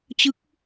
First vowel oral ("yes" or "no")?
yes